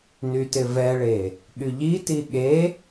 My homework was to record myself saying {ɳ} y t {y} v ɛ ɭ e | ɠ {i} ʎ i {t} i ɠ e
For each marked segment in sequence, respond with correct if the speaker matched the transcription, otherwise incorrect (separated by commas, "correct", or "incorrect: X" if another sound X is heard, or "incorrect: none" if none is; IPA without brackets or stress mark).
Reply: incorrect: n, incorrect: ɪ, incorrect: y, correct